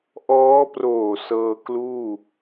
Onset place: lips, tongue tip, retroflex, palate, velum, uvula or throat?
throat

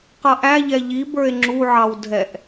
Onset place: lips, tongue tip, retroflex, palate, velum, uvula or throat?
uvula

